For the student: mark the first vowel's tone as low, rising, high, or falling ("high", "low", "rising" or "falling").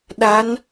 rising